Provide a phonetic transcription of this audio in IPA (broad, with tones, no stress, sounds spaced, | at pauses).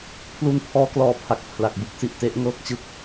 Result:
pʰ l u˧ n pʰ ɔː˧ k l ɔː˧ pʰ a˨˩ k̚ pʰ l a˨˩ k̚ b u˥˩ k̚ s i˨˩ ʔ t e˥˩ ʔ ŋ ɤː˥˩ k̚ t͡ɕ ɯ˥˩ k̚